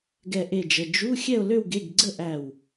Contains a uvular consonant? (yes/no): no